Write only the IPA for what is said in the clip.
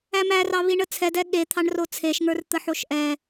æmærɑ βiɳət͡sʰɛdɛ ɠet̪ʰɑɳro t͡sʰeʃŋə˞r t̪əħoʃʔɛ

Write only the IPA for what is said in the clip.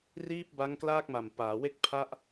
riː˥˩p̚ba˦˥ŋklaː˥˩k̚ma˨˩m paː˩˦we˥˩k̚ pʰa˥˩ʔ

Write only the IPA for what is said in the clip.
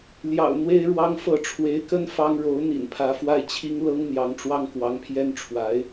ljɑ̰˨˩ʊ̯ n̪we˥ɪ̯ɻwɑ˥ŋfɤ˥˩ ʈ͡ʂʰwe˧˥ɪ̯kə˥n fɑ˥ŋ ɻo˧˥ʊ̯n̪ḭ˨˩n pʰä˧˥fwa˥˩ɪ̯t͡ɕʰi˥ŋ lɤ˥ŋn̪jɑ˧˥ŋʈ͡ʂwɑ˥ŋ kwɑ˧˥ŋpʰjɛ˥nʈ͡ʂʰwa˧˥ɪ̯

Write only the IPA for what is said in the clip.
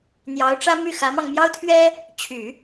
n̪jɑ˧˥ʊ̯ʈ͡ʂä˥ my˥˩xä˧˥mɑ˧ŋ mjɑ˥ʊ̯t̪ʰɥɛ˥ | t͡ɕʰy˨˩˦

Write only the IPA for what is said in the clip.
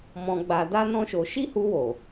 mɔ̃˧ɡ͡ba˧ da˦nɔ̃˦ʃo˧ ʃi˦hu˧wo˨

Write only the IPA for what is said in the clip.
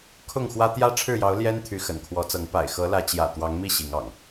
kʰʊ˥˨ŋxwä˦ t̪jä˦ ʈ͡ʂʰɻ̩˥˨jɑ˨˦ʊ̯ ljɛ˦n t̪ʰy˨˦xə̰˨˩nkʰwɔ˨˦t͡sɤ˨˦ŋ pa̰˨˩ɪ̯xɤ˨˦lä˨˦ t͡ɕjä̰˨˩ t̪wɑ˨˦ŋmi˥˨ ɕi˨˦ŋɑ̰˨˩ŋ

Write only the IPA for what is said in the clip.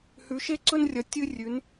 hʉ˧˥ʃe˥ǀɵ˥nrʲɐ˧˥ tʲɨ˥rʲʉ˧˥n

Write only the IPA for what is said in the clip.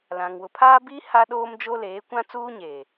lã˨ŋ wʊ˨ pʰaː˦biː˦ ha˦ɗoː˦md͡ʒo˦leː˨˦ kʷã˦t͡suː˦ɲeː˨

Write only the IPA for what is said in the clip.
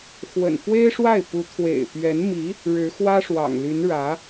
xwə̰˨˩n fwe˥ɪ̯ʂwa˥˩ɪ̯pu˧˥ t̪ʰwḛ˨˩ɪ̯pɥɛ˧˥nmi˧˥ | ɻɻ̩˧˥xwä˥ʂwɑ̰˨˩ŋly˧˥n ɻä˧˥

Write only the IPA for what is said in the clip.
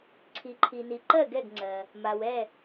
ǀʰi˩ǃʰi˩ni˩ ǃɜ˥˩ɡɛ˥˩ɡŋ͡ǀɜ˩ | ma˩w ɛ˥˩

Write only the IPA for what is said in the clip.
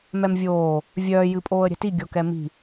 mɛmvʲoː | vʲœː jɨpʼoːə̯ɾʲɛ̤ti ɡʲokɛmi̤

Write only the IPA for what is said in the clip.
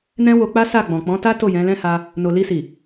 nɛ̃˦wo˧k͡pa˦ sa˦˨ɡ͡bɔ̃˨ k͡pɔ̃˨˦ta˦ to˦˨jɛ̃˨˦lɛ̃˦ha˧ | no˨li˧si˨

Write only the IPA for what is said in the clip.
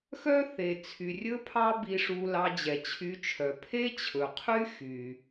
xœ˥θe˩t͡sʰy˩rʲɵ˥ pʰɑ˥bi˧ʂu˧ lɑ˧d͡ʑɛ˩t͡ɕʰy˧t͡ʃʰœ˩ pʰe˥t͡ɕʰɵ˩qʰy˥ xy˩

